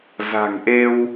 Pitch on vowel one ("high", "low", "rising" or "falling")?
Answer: low